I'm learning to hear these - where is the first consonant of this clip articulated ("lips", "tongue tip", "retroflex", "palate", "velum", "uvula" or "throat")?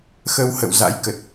velum